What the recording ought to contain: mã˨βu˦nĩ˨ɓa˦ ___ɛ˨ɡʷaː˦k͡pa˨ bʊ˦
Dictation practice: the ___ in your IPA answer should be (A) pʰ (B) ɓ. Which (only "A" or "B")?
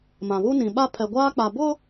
A